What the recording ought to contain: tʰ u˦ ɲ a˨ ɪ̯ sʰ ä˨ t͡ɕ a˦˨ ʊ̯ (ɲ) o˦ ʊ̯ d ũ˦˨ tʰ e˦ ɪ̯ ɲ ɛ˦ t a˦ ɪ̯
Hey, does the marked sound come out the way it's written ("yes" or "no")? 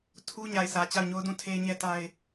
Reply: yes